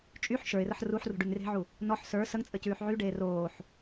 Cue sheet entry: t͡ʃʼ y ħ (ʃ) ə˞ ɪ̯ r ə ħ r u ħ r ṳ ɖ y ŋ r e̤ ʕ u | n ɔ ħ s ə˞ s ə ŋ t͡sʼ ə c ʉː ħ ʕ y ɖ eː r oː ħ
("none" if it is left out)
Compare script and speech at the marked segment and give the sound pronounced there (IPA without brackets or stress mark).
ʃ